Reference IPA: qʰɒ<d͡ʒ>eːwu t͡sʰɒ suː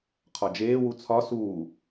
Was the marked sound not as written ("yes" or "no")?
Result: no